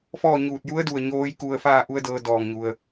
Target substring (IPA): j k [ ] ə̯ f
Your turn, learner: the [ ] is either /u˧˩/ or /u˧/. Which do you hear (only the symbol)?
u˧